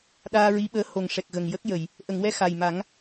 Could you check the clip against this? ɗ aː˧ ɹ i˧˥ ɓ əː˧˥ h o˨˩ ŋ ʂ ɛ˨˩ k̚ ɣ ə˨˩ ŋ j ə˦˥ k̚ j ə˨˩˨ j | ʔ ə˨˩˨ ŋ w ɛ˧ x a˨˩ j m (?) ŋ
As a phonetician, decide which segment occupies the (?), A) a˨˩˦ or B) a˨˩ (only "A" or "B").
A